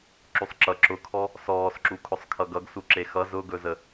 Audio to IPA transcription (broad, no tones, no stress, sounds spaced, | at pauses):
ǁ y sˤ ǁ ʌ ǁ ʊ kʰ ɔ | s ɔː s ǁ u kʰ ʊ sˤ kʰ ʌ ɡ ʌ ɡ s u ǁ e x ʌ z ʊ ɡ ɵ z ə